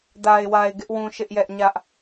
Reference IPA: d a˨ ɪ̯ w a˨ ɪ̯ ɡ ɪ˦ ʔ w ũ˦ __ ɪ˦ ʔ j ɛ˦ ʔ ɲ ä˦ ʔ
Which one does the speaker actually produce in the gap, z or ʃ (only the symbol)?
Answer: ʃ